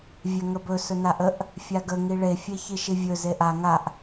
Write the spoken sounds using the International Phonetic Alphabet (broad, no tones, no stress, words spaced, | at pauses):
vʲɛŋəbɵ sɵnaʔəʔ | fʲaɡə ŋiɭe fʲeçiʃivʲɵ zeʔa ŋaʔ